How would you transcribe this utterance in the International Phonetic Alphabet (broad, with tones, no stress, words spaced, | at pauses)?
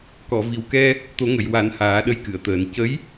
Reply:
kɔ˨˩˨vi˨˩wkɛ˧ | t̪o˨˩˦ŋə˨˩˨jwa˨˩˦n haː˨˩˦ɗə˧jkɨ˨˩˨ə̯t̪əː˨˩˦n cə˧˥j